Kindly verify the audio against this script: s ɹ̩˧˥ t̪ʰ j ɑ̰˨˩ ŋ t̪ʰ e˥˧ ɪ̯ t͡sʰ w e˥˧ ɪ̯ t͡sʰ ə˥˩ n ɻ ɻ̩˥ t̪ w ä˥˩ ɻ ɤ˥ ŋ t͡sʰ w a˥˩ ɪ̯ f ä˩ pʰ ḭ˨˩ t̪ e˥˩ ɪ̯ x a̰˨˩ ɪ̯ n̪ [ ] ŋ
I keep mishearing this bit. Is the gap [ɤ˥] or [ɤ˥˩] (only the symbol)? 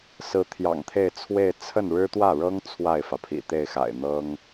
ɤ˥